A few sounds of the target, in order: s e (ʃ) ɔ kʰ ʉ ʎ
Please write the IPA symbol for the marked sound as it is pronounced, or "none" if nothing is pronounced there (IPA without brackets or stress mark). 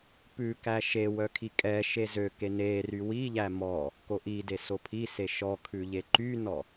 ʃ